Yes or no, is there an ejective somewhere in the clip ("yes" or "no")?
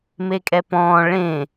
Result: yes